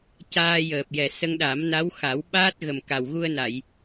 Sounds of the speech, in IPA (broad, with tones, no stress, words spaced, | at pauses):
caː˧jəː˨˩p̚jɛ˨˩ sə˧ŋɗa˨˩˦m na˧˥w xa˨˩˦w ɓaː˦˥t̚ ɣə˨˩mka˨˩w ɣu˧ə̯na˨˩˨j